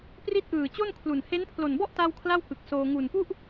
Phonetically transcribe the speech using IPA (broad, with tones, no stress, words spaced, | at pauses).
pri˦˥t̚ʔɯː˨˩ t͡ɕo˥˩nkʰlu˨˩n he˦˥npʰlo˨˩nbɔ˥˩ʔ ta˥˩w kʰla˥˩wkɯ˨˩k̚soː˧ ŋu˨˩npu˥˩ʔ